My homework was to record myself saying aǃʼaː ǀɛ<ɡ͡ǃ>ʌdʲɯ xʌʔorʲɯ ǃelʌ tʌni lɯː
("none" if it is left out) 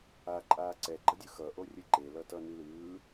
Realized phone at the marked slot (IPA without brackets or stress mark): ɡ͡ǃ